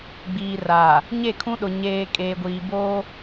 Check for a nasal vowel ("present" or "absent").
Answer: present